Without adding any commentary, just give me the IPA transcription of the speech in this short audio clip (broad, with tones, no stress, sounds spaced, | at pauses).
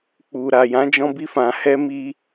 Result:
k͡p u˨ ɾ a˨ j ã˨˦ d͡ʒ ɔ̃˧ b i˧ f ã˨ h ɛ˧ m i˧